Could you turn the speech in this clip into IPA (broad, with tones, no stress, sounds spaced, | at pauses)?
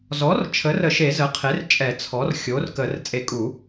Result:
z ɔ˩˥ r t͡ʃʰ ə˩˥ r ə˨˩˦ ʃ e˨˩˦ z ə˩˥ qʰ e˩˥ r t͡ʃʼ ɛ˨˩˦ t͡sʰ ɔ˩˥ r xʲ o˩˥ r k ə˨˩˦ r t͡sʼ e˨˩˦ kʼ u˨˩˦